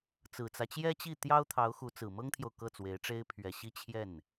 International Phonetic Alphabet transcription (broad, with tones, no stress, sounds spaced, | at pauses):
t͡s ɹ̩˨˩ t͡s ä˦ t͡ɕ j ɛ˥ t͡ɕ i˥˩ t̪ j ɑ˥ ʊ̯ t̪ʰ ɑ˧˥ ʊ̯ x u˧˥ t͡s ɹ̩˨˩ m ɤ˥ ŋ t̪ʰ j o˨ ʊ̯ k ɤ˥˩ t͡s w e˧˥ ɪ̯ ʈ͡ʂ e˥ ɪ̯ pʰ ɥ ɛ˨˩ ɕ i˥˧ t͡ɕʰ j ɛ˥˩ n